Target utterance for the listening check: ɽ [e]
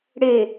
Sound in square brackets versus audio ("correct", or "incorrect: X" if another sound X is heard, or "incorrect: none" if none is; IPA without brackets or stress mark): correct